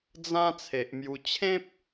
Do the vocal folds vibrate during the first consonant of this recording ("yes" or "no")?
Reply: yes